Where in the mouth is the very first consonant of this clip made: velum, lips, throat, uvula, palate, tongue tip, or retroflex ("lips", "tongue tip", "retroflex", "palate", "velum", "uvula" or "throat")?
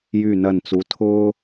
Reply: palate